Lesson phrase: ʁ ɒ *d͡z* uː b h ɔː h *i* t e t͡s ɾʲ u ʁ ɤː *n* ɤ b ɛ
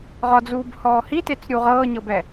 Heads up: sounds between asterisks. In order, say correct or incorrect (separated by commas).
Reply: correct, correct, incorrect